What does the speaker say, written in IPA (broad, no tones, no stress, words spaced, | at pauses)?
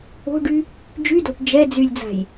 o̤ɖy | d͡ʒydo̤ʈ d͡ʒɛ d͡zylʲd͡za̤j